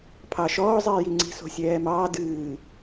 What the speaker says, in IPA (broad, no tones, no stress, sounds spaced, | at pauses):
pʰ ɑ ʃ ɔː zˤ iː j i ŋ͡ǀ i̤ s o̤ sʲ ɛː m ɑː d ɨː